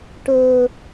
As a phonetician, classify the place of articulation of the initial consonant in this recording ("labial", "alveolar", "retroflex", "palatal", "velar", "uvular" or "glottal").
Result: retroflex